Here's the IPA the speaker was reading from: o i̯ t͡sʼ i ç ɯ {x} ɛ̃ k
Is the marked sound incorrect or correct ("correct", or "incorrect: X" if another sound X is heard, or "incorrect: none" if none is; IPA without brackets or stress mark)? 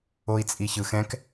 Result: correct